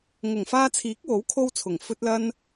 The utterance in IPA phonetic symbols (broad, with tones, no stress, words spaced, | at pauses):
ŋʊ˨˩ŋfaː˧t͡sʰiː˨˥k̚wo˨˥w kʰo˧wt͡sʰʊ˨˩ŋ fɵ˧t̚lɐ˧n